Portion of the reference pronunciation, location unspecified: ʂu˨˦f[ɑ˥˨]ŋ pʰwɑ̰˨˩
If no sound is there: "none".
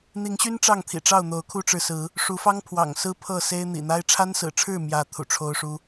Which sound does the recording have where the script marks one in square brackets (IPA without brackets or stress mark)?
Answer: ɑ˦